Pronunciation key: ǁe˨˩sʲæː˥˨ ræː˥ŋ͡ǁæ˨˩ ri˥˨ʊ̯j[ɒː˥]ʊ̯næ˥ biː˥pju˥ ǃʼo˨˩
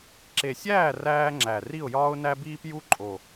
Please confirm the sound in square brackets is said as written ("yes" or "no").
yes